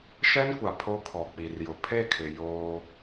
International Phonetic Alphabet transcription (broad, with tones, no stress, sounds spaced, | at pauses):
ʃ ɛ˦ n kʷ a˨ pʰ o˦ kʰ ɔ˨ k͡p i˨ r j ʊ˨ pʰ e˦˨ kʰ ɪ˨ j oː˦